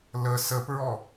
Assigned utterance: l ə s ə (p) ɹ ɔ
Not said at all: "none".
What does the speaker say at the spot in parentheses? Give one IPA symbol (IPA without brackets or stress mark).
p